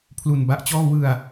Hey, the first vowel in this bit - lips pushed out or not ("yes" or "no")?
yes